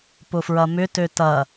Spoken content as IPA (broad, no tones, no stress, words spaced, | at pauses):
pʊfɹɐmʏtø tɐ